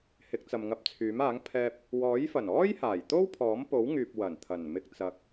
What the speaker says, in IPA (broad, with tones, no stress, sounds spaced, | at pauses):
h ɪ˨˥ k̚ t͡s ɐ˨ m ŋ ɐ˧ p̚ t͡sʰ yː˨˥ m aː˨˥ ŋ pʰ ɛː˧ p̚ | w ɔː˨˥ j f ɐ˨˩ n ɔː˥ j h aː˨˩ j t̪ o˥ w pʰ ɔː˨˥ m p o˨˥ w ŋ yː˨ p̚ w ɐ˨˩ n t̪ʰ ɐ˨˩ n m ɪ˧ k̚ t͡s ɐ˨ k̚